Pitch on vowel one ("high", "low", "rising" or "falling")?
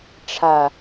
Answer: low